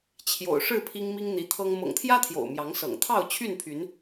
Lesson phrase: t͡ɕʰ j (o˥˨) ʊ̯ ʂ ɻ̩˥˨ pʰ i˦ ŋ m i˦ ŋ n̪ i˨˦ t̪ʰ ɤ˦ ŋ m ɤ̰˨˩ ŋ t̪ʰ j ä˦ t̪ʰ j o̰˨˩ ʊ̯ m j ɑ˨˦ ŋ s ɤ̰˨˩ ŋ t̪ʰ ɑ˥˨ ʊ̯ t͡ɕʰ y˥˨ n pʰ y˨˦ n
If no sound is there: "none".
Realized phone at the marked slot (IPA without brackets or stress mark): o̰˨˩